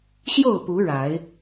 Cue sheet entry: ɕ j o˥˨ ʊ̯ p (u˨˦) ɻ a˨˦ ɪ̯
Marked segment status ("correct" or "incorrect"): correct